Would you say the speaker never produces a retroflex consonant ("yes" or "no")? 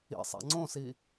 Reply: yes